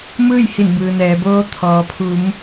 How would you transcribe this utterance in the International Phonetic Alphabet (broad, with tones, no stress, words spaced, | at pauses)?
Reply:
mɯː˥˨jhi˧˩nbɯː˩nɛː˩˧ boː˧ t̪ʰɔː˩pʰu˩˧m